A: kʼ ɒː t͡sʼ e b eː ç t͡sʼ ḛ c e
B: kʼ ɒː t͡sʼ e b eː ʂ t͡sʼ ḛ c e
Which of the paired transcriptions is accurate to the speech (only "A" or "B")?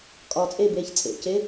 A